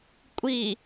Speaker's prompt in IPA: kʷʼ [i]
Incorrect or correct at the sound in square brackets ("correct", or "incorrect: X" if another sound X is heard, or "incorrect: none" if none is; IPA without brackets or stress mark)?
correct